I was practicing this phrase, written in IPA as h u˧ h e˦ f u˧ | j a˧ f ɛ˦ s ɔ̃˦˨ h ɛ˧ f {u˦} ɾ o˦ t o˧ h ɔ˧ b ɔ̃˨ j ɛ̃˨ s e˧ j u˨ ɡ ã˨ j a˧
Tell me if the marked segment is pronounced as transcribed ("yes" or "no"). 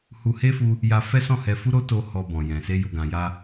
yes